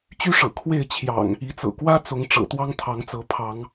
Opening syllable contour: high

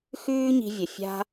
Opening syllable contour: high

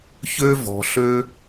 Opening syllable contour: high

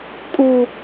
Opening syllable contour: high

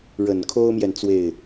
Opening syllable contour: low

